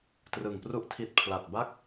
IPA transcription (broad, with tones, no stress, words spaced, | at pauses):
trɯ˨˩ŋpru˥˩ʔtʰi˦˥t̚ pʰla˨˩t̚ba˥˩k̚